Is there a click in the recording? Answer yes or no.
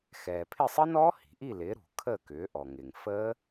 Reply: no